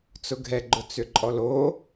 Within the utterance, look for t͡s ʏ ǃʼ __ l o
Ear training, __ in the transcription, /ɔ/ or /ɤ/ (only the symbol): ɔ